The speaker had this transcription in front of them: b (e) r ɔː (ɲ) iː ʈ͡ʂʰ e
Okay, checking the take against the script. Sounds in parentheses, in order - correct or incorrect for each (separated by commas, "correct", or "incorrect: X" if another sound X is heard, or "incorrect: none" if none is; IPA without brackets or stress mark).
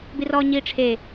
incorrect: i, correct